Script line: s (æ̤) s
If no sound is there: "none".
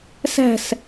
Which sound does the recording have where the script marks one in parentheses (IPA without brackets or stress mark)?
æ̤